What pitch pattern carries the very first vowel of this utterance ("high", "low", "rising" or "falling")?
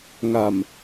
low